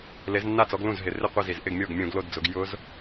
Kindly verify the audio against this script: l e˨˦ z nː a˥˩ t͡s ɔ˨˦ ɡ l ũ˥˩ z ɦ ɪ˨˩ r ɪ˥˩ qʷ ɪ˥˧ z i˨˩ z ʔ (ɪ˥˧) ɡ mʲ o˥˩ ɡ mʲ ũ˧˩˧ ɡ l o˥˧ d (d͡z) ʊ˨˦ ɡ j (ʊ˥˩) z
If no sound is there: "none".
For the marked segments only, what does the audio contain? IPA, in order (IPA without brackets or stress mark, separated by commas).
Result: ɪ˥˧, d͡z, ʊ˦˥